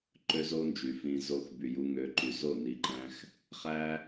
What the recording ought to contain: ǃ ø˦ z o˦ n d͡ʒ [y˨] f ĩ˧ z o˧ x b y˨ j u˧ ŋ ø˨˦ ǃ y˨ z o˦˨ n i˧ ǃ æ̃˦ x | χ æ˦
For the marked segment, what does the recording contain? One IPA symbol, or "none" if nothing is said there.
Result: y˨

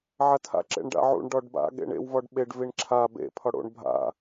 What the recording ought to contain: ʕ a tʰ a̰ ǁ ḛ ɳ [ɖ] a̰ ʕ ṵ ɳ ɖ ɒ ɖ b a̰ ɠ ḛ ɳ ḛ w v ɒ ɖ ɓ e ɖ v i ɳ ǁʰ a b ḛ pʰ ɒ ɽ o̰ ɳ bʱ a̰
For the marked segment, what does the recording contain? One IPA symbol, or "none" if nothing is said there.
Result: ɖ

